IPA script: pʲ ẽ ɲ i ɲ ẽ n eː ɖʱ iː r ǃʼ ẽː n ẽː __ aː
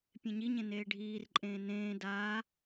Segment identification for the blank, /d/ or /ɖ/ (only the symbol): d